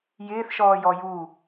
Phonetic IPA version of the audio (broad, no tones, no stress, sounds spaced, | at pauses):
j ɪː θ ʃ ɔː j ɔ j u